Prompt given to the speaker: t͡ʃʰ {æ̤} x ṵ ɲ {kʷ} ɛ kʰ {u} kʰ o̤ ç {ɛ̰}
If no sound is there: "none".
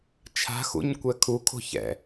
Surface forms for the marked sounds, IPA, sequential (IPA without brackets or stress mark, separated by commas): a̤, kʷ, u, ɛ̰